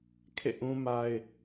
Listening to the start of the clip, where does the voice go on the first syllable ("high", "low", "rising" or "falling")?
falling